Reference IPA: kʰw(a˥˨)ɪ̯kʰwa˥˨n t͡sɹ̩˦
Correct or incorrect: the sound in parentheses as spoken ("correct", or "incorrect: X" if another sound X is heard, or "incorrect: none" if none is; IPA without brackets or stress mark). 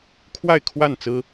correct